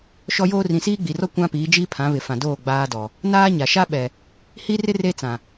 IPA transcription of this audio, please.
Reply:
ʃ ɔ˦ j oː˦ r ĩ˨ s iː˦ ɡ͡b i˨ r ɔ˦ kʷ ã˦ p iː˨˦ d͡ʒ iː˦ pʰ ã˨˦ β ɪ˨ f ã˨ d oː˦˨ ɡ͡b aː˦ d ɔ˨ | n aː˦ ɲ a˨ ʃ a˦ ɓ ɛ˨ | h i˦ r ɪ˦ r e˦ t͡s ã˨

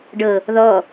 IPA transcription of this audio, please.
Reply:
ɖ ɤ | ð ɔ

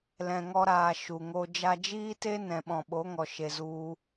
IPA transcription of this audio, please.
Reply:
l ɛ̃˧ ŋ ɔ˦ ɾ aː˧ ʃ u˨ ŋ o˧ d͡ʒ a˧ d͡ʒ iː˦ t e˦ n ɛ̃˨ ɓ ɔ̃˨ ɓ o˨˦ ŋ ɔ˨ ʃ e˧ z u˦

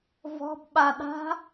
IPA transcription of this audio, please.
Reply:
v ɔ̤ b ɓ a ɗ a̤

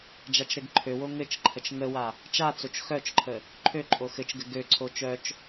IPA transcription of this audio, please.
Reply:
d͡ʒ a t͡ʃ ɾ ɘ ɡ ǃʰ ø w o ŋ ɘ t͡ʃ ǃʰ ə t͡ʃ ŋ ə w a | t͡ʃ a t͡s o t͡ʃ x œ t͡ʃ ǃʰ ə | ǃʰ ø ǃʼ o x ɘ t͡ʃ ɡ ɘ ɡ ø ǀʰ o t͡ʃ œ t͡ʃ

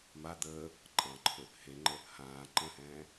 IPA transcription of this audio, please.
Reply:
m a d̪ əː | ǃʼ ɑ̃ ǃʰ ɵ | h e ŋ͡ǃ ə | h ãː ǃ ə̃ː h ɛ̃ː

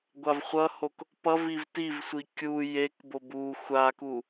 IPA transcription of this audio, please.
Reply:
ɡʷ a v χʷ ʌ h o k | p ʌ v i v t i v sʷ i kʲ u j e k b o b u xʷ a k u

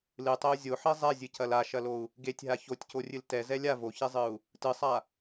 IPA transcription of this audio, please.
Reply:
l ɨ tˤ ɛ u̯ zʲ o ħ i zˤ ɛ zʲ ɨ c ɐ l a ʃ ɐ l o u̯ | ɡ e tʲ ɦ a ç o tʲ c o rʲ ɨ l t ɛ z ɛ lʲ a v o ç e zˤ ɨ u̯ | t ɨ sˤ a

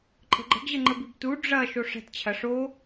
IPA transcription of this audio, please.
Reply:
ǃʼ ə̤ ɡ͡ǃ ə̤ ɡ ʑ ə ŋ͡ǃ ə b i b t u ɖ͡ʐ ɐ ʃ o ʂ ɛ̤ t t͡ɕʰ ɐ ʂ o

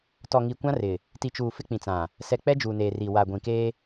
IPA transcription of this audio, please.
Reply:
t ɔ˨ ŋ i˨ kʷ ã˦ r ɪ˨ | t i˨ t͡ʃ uː˨ f ɪ˦ k͡p ĩ˨ t͡s ã˨ | s ɛ˨ k͡p ɛ˦ d͡ʒ uː˨ n eː˨ r i˨ w a˨ ɡʷ ĩ˨ k eː˦

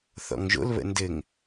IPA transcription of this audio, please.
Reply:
θ ɔ̰ ŋ ʒ o̰ l β ə̰ n d ɘ ŋ

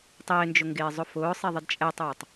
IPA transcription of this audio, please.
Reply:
tˤ ɪː n d͡ʒ ʊ ŋ ɡ ɪː zˤ ʊ f ʊː sˤ e ðˤ ɪ d t͡ʃʼ ɛ tˤ oː tˤ

